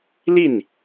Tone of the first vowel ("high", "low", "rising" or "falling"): falling